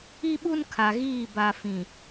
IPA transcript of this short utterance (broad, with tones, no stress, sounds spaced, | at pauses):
i˦ ɓ u˦ n kʰ a˨ ɣ iː˦˨ b a˨ f ĩ˨